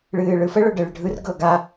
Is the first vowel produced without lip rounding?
yes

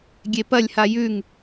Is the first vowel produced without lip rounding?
yes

